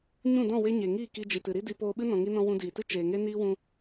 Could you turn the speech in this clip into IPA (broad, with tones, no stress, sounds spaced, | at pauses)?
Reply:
ɲ ũ˦˨ d ɔ̃˦˨ w e˦ ɲ e˨ ŋ iː˦˨ k i˧ d͡ʒ i˨ t ɨ˨ ɾ i˦ d i˧ p oː˧ ɓ ɨ˦ n ɔ̃˨ ŋ i˧ n ɔ̃˧ w ũ˧ d iː˨ t ɨ˦ t͡ʃ eː˨ ŋ e˦ n iː˦ w ũ˧